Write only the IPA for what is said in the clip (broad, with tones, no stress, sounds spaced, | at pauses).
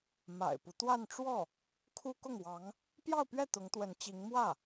m a̰˨˩ ɪ̯ p u˦ t̪ w a˥˧ n ʈ͡ʂ w ɔ˥˩ | kʰ u˥ k ʊ˥˩ ŋ w ɑ˧˥ ŋ | p j ɑ˥˧ ʊ̯ p ɥ ɛ˥˩ t̪ ʊ˧˥ ŋ t̪ w ə˧˥ n t͡ɕ i˧˥ ŋ m w ä˥˩